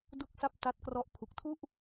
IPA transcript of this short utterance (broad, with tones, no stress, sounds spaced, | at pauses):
d u˥˩ k̚ s a˥˩ p̚ t a˦˥ t̚ k r ɔ˦˥ ʔ pʰ u˨˩ k̚ tʰ u˥˩ ʔ